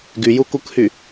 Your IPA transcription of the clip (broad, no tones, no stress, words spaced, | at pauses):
ɡyjukukhy